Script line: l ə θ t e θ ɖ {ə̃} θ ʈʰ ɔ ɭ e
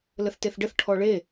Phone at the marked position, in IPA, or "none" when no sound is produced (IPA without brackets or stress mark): ə